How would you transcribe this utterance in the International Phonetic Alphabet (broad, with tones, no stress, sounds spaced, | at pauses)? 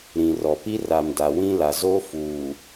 ɾ ĩ˨ r ɔ˨ p i˦ r a˨ m d a˨ w ĩ˦ l a˨ z o˦ f uː˨